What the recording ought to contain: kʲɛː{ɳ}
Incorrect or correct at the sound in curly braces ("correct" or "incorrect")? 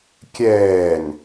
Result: incorrect